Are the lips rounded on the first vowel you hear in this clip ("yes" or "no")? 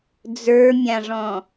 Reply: no